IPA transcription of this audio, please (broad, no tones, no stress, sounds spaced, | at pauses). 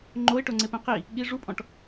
ŋ͡ǃ o ɪ̯ ʈ o ŋ͡ǀ e p ẽ q i | ɠ i ʐ u pʼ ɔ̃ ʈ